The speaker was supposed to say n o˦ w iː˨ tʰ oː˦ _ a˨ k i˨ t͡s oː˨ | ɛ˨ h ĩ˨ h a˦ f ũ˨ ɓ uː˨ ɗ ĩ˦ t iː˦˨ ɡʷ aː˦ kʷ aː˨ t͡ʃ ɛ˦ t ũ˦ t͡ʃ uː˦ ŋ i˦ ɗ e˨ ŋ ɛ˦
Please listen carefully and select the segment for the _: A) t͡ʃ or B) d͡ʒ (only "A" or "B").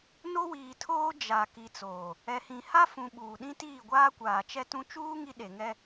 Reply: B